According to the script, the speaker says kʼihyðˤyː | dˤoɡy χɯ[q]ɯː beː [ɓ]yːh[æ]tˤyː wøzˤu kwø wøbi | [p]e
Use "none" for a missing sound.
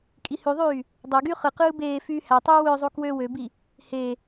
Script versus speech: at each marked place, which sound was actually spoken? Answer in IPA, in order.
q, f, æ, h

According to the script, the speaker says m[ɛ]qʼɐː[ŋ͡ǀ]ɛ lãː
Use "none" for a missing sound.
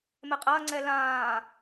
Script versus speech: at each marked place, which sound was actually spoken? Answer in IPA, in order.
ɛ, ŋ͡ǀ

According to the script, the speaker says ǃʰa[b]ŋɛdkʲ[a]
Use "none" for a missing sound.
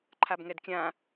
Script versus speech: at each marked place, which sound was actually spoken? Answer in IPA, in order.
b, ã

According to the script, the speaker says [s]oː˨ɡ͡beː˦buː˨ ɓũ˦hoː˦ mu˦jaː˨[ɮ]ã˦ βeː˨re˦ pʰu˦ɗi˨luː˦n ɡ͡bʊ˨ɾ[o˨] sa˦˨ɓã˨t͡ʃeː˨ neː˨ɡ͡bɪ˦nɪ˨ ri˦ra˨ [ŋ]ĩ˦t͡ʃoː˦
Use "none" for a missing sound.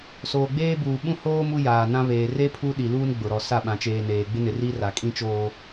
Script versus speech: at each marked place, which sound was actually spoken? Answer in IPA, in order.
s, n, ɔ˨, kʼ

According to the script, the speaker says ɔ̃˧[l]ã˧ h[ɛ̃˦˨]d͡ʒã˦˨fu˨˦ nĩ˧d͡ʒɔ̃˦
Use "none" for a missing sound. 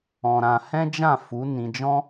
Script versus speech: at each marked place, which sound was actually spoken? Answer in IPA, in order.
ɾ, ɛ̃˦

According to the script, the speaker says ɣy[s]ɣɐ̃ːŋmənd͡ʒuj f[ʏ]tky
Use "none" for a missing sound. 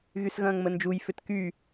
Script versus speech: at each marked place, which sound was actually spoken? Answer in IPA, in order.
s, ʏ

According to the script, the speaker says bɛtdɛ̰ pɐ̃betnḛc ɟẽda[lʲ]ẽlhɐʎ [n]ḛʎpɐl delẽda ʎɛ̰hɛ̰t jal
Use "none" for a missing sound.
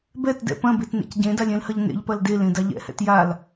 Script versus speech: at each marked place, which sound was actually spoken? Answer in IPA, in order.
lʲ, n

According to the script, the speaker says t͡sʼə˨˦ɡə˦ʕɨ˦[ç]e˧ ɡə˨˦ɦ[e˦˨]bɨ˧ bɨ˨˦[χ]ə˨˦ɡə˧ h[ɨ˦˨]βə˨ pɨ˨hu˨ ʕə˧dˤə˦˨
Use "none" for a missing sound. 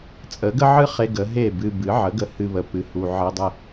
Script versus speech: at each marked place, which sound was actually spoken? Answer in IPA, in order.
χ, e˦˨, ʕ, ɨ˧

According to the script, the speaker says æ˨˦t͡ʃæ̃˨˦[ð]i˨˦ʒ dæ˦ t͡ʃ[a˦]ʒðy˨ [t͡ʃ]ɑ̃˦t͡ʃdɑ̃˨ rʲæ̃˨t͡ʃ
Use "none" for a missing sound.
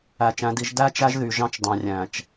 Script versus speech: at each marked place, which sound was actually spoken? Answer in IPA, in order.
d, æ˦, ʒ

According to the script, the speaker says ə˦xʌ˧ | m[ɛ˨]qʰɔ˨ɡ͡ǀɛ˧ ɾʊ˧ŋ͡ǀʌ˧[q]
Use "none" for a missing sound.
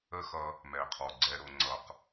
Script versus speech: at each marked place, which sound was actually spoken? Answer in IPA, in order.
ɛ˨, q

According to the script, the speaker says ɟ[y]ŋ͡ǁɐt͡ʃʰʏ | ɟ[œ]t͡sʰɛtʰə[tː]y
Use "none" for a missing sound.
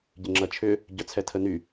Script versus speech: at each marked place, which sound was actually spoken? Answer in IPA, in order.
ɪ, œ, n

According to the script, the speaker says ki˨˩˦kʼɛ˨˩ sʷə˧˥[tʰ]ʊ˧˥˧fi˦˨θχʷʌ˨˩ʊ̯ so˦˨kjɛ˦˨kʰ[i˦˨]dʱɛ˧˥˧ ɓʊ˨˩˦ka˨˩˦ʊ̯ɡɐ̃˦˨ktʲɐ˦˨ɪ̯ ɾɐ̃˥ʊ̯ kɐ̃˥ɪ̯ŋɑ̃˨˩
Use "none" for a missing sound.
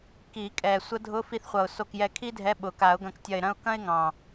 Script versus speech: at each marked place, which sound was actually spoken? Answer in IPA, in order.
dʱ, i˥

